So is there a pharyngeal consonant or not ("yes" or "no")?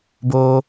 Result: no